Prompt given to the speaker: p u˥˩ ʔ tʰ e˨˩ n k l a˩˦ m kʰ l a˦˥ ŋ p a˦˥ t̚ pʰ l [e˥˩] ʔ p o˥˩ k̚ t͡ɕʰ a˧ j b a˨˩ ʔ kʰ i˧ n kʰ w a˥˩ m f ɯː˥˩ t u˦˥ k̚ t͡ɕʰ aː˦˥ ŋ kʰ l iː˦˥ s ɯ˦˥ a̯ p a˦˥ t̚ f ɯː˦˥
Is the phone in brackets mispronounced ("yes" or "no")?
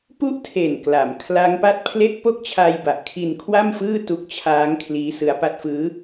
no